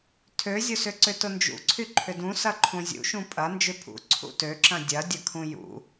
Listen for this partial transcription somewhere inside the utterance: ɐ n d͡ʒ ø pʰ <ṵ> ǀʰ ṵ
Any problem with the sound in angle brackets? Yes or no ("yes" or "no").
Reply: no